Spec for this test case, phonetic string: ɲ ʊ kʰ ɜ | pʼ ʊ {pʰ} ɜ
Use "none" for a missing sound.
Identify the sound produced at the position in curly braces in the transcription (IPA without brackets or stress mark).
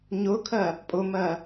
m